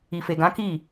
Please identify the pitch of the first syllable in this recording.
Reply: low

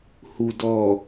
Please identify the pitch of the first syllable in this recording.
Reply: low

